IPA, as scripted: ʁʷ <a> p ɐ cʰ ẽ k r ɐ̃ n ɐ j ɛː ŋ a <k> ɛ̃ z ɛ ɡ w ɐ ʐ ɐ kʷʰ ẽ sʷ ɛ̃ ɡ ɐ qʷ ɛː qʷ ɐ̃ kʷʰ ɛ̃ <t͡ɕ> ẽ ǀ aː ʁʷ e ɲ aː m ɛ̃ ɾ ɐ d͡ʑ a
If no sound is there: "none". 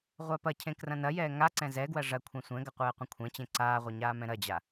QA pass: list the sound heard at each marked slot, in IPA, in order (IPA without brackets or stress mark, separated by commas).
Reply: a, ǀ, t͡ɕ